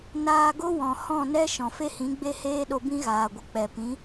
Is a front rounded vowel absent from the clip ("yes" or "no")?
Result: yes